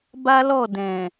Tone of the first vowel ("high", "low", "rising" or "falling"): high